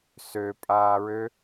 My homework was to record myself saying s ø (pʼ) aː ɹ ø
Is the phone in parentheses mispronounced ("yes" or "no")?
no